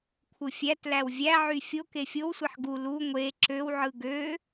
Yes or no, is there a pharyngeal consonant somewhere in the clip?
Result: yes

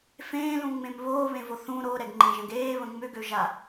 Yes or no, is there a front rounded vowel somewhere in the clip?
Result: yes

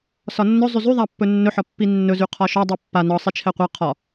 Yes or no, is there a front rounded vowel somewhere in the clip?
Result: yes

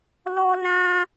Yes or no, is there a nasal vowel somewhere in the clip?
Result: yes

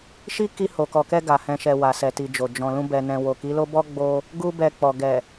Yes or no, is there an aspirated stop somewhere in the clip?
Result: no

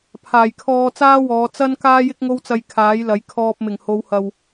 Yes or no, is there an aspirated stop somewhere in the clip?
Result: yes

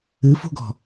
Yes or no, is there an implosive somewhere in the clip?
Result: no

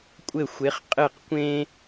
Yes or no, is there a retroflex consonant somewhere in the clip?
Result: no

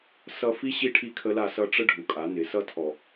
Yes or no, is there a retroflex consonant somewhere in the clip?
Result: yes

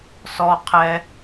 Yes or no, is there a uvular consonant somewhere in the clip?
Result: yes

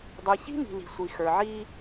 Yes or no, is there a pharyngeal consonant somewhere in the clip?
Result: yes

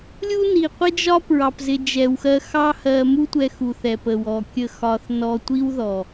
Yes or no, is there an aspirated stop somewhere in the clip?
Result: no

